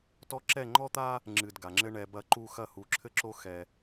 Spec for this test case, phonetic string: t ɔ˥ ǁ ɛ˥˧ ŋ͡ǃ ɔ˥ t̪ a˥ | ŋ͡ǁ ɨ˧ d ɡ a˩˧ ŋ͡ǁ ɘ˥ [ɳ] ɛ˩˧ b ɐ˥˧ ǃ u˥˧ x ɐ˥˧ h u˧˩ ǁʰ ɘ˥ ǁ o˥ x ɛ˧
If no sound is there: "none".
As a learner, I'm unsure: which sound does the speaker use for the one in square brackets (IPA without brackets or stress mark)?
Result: ɳ